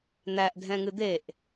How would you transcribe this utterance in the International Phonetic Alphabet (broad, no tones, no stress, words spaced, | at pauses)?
n̪æʔdʱɛ̃ŋɨ d̪eʔ